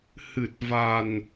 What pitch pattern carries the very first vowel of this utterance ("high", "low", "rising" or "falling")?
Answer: low